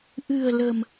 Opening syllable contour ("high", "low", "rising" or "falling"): low